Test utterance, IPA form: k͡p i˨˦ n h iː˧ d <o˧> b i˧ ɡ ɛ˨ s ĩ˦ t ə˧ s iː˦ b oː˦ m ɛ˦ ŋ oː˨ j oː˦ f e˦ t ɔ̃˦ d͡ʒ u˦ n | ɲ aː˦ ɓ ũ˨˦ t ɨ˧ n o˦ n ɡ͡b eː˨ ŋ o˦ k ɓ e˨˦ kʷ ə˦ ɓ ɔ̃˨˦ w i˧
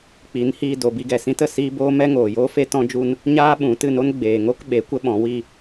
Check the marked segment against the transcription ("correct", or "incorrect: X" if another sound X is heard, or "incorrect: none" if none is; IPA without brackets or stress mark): incorrect: o˨